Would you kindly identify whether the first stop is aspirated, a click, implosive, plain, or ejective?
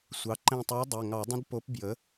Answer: click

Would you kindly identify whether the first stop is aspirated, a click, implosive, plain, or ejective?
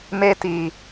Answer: plain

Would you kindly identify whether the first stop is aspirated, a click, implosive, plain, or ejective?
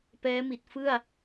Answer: plain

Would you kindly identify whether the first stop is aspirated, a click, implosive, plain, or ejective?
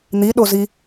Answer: implosive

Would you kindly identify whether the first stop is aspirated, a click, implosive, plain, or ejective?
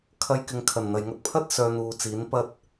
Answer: aspirated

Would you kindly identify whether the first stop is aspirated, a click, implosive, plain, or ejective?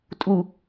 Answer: ejective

